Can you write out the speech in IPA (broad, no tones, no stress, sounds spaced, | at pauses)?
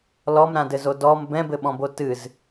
l ɔ m ɾ ã d ɘ z o d ɔ m b ɛ̃ b ɘ ɓ ɔ̃ b o t ɨ z